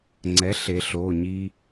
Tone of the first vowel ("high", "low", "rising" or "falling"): rising